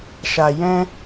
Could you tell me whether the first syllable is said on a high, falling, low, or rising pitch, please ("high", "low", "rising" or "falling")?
low